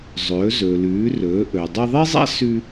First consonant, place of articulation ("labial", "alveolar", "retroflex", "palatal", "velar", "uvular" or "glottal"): alveolar